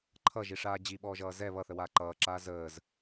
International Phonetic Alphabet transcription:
ǃʰʌʒiʂaː d͡ʑiɓɔːʒʌː zɛ βʌθəwaː ǃʌːǁaː zəːz

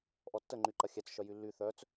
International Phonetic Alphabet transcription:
ʔɔtːə ŋ͡ǃyǃɐxʲɛt͡s ʃœjylːy θœt͡s

